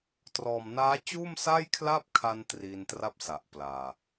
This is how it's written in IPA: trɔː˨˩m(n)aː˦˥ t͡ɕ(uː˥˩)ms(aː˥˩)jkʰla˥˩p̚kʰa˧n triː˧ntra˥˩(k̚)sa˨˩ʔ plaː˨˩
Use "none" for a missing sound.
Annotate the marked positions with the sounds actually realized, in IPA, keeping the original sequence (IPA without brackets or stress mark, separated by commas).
n, uː˥˩, a˥˩, p̚